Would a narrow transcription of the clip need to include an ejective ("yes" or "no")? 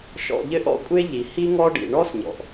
yes